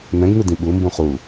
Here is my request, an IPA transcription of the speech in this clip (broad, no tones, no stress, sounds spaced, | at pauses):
n ɛ̃ ɡ n ɯ d ĩ ɓ u m b ũ χ u